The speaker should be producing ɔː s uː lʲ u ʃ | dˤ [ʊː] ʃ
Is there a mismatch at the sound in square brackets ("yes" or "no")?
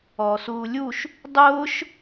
no